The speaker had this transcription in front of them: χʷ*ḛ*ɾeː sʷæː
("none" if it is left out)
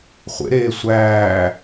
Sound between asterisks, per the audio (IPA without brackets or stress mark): ḛ